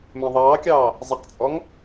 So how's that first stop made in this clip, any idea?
plain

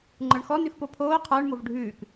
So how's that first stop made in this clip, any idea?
click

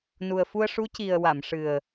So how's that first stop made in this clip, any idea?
plain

